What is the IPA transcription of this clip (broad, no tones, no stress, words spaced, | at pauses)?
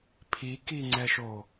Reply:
pʰikiŋ͡ǀɛʃo